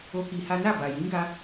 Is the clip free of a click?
yes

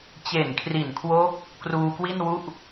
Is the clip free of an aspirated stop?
no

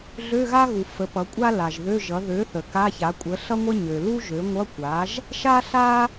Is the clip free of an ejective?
no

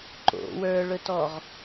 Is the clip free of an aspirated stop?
yes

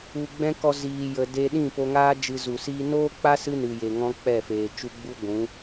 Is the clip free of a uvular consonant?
yes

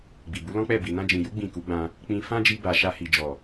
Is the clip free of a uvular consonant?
yes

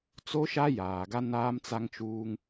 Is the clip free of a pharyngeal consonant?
yes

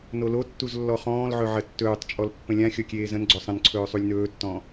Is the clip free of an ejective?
no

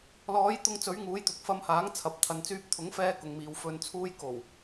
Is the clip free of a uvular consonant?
yes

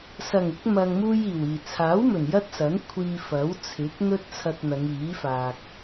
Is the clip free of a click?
yes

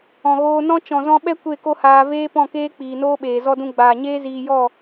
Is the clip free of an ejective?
yes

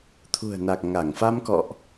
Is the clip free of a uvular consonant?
yes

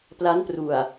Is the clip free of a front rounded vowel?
yes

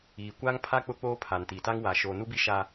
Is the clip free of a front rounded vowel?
yes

